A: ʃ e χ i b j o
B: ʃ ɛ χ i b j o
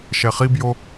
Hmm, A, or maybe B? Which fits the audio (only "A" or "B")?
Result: B